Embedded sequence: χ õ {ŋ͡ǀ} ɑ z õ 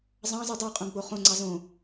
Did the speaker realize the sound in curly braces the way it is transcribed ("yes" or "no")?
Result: yes